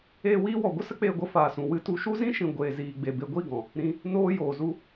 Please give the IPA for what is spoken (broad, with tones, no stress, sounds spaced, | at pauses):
eː˧ w iː˧ w ɔ˨ ɡʷ ə˦ s ə˦ k͡p eː˧ ɡʷ ə˧ f aː˨ s ũ˨ w ɨ˧ t u˧ ʃ u˦ z ĩ˦ ʃ ĩ˨ ɡʷ eː˨ z iː˨ ɡ͡b e˨ b e˧ ɡʷ i˦˨ ɡ ɔ̃˨ | ɾ ĩ˧ | n oː˧ j oː˨ z u˧